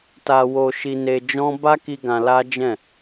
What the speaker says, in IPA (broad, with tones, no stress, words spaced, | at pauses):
ta˧wo˧ʃi˧ ne˧d͡ʒɔ̃˦ ba˦ki˧ ɡã˧la˦d͡ʒɛ̃˦˨